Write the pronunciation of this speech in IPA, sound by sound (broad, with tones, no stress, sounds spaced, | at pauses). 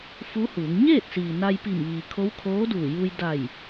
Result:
f u˧˥ h uː˩˧ ŋ ɲ eː˥˨ t̚ s iː˩ n a˧ j p i˧˩ m ʋ iː˩ kʰ o˧˥ w kʰ oː˧˥ d uː˧˩ j uː˧ j d a˧˩ j